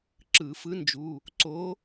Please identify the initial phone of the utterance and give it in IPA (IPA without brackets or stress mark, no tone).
ǁ